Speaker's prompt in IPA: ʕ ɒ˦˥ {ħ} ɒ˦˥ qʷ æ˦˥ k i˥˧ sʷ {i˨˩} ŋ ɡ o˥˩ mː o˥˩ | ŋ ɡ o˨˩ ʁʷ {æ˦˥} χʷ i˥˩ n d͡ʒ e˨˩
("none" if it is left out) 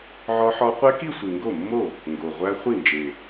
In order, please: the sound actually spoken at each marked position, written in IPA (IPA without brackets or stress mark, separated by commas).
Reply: ħ, i˨˩, æ˦˥